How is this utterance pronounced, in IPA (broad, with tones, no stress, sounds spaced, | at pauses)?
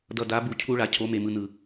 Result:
d ʌ˨ d a˨˦ b u˨ cʰ u˦ ɭ a˨ cʰ o˨˦ m e˨ m ɯ˨ n ɯ˨